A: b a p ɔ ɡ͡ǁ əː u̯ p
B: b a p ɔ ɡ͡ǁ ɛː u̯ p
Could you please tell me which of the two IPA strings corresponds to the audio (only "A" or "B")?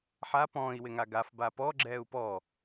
B